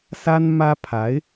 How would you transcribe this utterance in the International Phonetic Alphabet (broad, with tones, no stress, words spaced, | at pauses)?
sa˥nmä˥pʰa˧˥ɪ̯